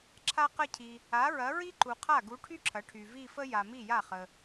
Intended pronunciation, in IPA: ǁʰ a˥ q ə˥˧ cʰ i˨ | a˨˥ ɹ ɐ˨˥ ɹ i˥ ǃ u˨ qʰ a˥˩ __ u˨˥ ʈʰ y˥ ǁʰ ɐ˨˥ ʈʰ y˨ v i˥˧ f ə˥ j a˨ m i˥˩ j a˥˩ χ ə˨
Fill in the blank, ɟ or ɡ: ɡ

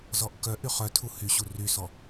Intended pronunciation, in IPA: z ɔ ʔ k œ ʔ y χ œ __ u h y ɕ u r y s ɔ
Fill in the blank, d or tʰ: tʰ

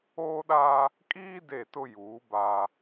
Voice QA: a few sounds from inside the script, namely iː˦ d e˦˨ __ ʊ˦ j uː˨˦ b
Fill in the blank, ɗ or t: t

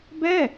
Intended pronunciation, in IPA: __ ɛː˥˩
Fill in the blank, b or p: b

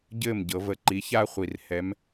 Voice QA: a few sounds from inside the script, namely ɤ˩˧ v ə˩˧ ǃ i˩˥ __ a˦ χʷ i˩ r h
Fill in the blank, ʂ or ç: ç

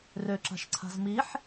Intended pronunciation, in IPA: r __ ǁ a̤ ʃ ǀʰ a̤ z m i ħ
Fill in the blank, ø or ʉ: ø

